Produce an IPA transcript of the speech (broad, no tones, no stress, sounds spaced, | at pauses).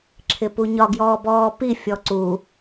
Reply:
ǁʰ ɪ p u ɲ ɒ ɡ j ɔː b ɔː p i fʲ ɔ ǀ u